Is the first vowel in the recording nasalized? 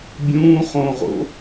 yes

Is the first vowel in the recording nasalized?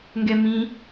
no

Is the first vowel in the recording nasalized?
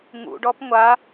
no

